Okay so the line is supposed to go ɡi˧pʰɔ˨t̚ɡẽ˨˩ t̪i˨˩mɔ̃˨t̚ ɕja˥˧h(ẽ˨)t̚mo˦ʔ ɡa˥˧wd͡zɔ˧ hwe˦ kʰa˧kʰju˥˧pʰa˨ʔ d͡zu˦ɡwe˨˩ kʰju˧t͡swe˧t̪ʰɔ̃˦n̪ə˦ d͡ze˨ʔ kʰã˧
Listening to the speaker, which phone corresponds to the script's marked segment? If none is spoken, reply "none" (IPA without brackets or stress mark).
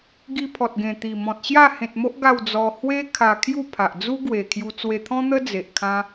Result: ẽ˨